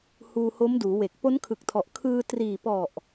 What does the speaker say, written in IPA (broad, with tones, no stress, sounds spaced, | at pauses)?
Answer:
h uː˧ h o˦˥ m d uː˩˦ w e˨˩ k̚ p o˦˥ n kʰ ɯ˨˩ k̚ tʰ ɔ˨˩ ʔ kʰ ɯː˧ t r iː˨˩ p ɔ˨˩ ʔ